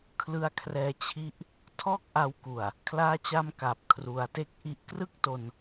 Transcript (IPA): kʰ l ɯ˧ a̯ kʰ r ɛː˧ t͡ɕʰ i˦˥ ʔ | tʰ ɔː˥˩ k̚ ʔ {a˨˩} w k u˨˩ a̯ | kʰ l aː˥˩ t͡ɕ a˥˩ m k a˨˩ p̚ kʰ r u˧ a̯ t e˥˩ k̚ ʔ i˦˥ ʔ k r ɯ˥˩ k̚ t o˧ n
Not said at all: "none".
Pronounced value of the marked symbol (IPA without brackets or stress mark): a˧